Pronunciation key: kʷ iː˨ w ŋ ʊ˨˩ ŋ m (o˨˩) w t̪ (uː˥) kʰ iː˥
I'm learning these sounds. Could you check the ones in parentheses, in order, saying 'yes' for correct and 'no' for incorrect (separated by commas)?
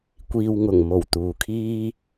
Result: yes, no